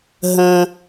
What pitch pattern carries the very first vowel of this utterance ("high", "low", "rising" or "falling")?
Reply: high